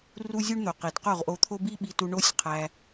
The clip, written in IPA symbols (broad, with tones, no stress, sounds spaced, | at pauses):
r u˦ zʲ u˦ ɳ n̪ o˨ q i˨ d q o˦˨ ʁ ʔ o˧ t̪ʰ o˦ b i˦ ɓ i˧ t u˧ ɳ o˦ sʲ qʰ æ˧